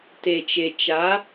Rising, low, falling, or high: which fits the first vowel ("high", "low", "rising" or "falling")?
low